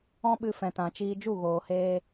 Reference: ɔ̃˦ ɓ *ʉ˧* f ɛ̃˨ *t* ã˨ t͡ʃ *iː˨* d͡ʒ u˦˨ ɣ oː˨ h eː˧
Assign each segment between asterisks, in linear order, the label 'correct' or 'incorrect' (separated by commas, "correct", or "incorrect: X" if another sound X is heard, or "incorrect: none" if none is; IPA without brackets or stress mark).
incorrect: ɨ˧, correct, incorrect: iː˧